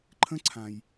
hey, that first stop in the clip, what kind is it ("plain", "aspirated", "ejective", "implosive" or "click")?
click